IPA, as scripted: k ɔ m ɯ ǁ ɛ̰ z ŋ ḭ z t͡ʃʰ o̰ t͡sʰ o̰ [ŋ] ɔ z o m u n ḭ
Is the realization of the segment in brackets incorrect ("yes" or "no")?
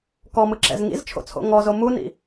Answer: no